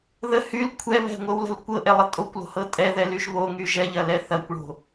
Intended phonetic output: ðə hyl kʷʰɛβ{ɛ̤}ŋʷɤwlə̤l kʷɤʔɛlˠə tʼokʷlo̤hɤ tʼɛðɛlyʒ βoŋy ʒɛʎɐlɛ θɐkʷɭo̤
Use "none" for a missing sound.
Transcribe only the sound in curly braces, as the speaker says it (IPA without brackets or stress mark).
ɛ̤